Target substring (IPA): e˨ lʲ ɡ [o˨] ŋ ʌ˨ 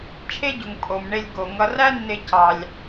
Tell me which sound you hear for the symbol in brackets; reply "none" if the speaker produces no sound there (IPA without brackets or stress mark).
o˩